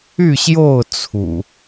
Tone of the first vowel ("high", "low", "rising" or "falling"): falling